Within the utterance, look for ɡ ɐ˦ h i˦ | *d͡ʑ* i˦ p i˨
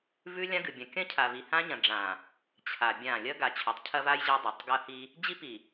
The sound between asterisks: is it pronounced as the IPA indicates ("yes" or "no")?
yes